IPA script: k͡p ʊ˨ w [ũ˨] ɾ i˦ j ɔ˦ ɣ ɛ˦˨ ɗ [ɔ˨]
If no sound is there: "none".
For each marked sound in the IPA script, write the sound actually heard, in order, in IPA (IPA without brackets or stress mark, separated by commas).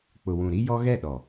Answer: ũ˨, ɔ˨